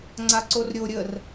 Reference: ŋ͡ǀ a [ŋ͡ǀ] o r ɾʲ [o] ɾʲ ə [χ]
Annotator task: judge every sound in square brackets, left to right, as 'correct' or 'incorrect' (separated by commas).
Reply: incorrect, correct, incorrect